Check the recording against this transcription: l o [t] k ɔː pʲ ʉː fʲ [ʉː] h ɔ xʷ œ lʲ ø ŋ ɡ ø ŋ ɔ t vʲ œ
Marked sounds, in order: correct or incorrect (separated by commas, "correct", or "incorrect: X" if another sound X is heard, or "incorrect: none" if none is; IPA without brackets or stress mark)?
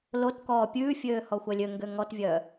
correct, incorrect: øː